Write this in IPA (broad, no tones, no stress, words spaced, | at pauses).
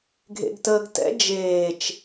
ɡʱḛɡtəːɡtɛ̰ d͡ʒeːt͡ʃ